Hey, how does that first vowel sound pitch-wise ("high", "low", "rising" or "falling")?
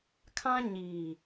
high